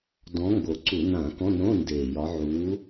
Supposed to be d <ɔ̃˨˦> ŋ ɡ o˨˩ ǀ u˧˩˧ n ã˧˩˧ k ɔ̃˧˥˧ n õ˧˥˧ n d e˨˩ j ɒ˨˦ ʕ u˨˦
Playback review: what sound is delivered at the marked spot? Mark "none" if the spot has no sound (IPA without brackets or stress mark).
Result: ɔ̃˨˦